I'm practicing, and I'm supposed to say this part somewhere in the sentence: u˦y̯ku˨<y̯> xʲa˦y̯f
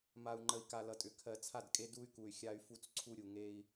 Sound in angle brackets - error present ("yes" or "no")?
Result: no